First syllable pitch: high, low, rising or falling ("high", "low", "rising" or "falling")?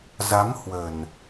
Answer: rising